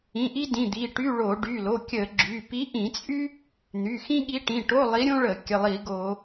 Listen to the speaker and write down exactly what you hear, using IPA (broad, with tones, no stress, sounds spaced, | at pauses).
ĩ˩˧˩ ʔ i˥ d ĩ˩˧˩ d̪ i˩˧˩ ʈ y˧˥˧ ɭ o˧˩˧ ɖ y˩˧˩ l o˩˧˩ kʲ ə˧˩˧ ɡ͡ǁ y˩˧˩ p i˧˥ ʔ ĩ˧˩˧ t͡sʼ y˥ | n̪ y˩˧˩ x ĩ˥ ɠ i˧˥ ʈ ĩ˩˧˩ ʈ o˧˥˧ lˠ i˧˥ ɾʲ õ˥ ɭ ə˧˩˧ kʲ ə˩˧˩ lˠ i˧˩˧ ɡ o˧˩˧